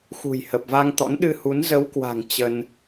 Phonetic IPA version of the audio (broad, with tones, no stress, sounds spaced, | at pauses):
x ṳ˨˩ j h ə˨˩ p̚ v a˧ ŋ t̪ ɔ̰˧˥ n ɗ ɨ˧ h u˨˦ n z ə˨˦ w k w a̤˨˩ ŋ t͡ɕ ə˧ n